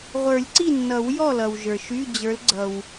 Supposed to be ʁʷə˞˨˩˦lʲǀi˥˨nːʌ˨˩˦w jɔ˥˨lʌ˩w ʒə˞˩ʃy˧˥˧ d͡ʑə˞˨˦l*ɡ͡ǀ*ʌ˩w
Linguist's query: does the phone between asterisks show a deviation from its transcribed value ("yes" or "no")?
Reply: no